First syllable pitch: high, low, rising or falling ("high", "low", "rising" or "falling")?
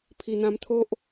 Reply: low